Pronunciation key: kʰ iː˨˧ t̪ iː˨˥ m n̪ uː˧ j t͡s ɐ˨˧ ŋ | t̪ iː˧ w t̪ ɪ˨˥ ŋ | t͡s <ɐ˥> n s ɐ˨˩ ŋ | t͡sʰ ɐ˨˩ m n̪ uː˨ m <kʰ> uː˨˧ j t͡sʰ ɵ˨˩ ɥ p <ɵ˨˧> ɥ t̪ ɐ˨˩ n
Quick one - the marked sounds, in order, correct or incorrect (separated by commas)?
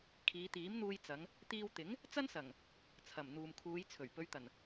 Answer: correct, correct, correct